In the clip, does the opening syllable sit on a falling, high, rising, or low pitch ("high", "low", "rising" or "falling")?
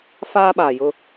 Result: high